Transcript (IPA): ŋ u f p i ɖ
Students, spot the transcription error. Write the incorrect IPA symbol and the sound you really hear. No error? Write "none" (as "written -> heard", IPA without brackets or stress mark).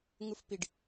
none